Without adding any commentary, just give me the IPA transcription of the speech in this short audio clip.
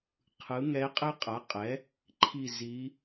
qʰɯ˩˥ŋɛ˧˥qʼɛ˥ qʼa˩˥qʼɛ˩˥ | ǃʰi˥˨ zi˧˥

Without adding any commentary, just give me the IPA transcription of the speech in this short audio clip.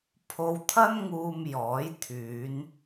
pʰo˧wt̪ʰɐ˥nŋuː˧m jɔː˨˥j t̪ʰyː˨˧n

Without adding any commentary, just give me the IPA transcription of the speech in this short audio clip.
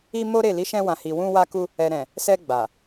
i˧ mo˦ɾe˦˨ li˨˦ʃɛ̃˧wã˨hi˨ wũ˧wa˧ ku˧ | ɛ˨ɾɛ̃˨ | sɛ˧ ɡ͡ba˨

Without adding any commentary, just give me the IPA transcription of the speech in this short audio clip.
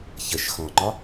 çəʃ xɔ̃ŋ͡ǃɒ

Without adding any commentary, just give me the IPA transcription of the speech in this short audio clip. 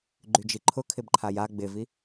ɡ͡ǃyd͡ʒiǃʰʊ kʰɪbǃʰaja ɡ͡bɪvi

